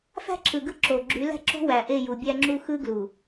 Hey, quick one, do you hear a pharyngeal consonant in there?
no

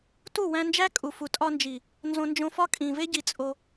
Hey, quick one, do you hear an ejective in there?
yes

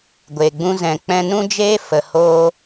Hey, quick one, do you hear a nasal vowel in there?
yes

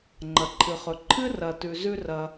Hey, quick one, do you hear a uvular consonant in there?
yes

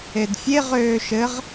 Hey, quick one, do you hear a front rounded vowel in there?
yes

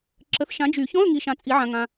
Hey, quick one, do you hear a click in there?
yes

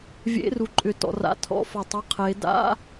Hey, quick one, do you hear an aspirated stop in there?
yes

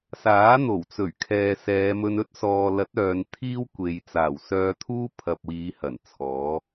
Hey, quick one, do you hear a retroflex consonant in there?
no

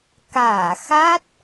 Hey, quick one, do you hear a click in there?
no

